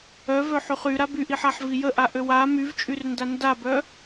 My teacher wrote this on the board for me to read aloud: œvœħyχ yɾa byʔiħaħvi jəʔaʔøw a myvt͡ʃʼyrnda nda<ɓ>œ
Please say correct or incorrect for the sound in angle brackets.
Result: incorrect